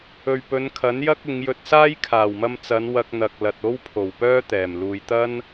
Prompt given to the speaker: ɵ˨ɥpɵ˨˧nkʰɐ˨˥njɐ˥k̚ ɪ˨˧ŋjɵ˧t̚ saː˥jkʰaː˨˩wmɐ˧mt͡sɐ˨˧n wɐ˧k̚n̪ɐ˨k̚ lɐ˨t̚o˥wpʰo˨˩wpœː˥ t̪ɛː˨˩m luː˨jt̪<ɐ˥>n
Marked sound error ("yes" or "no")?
no